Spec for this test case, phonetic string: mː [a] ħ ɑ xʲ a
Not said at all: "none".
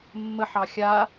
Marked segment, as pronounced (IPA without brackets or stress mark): ə